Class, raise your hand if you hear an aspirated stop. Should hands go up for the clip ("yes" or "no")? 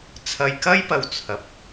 yes